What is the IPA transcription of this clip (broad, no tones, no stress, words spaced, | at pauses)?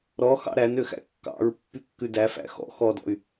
ɾɔ xɑ̰ɾænøxæ̰ kːɑ̰ɹ pːykːʉdæfæ̰ xɔ̰ xɔdɔ̰y̯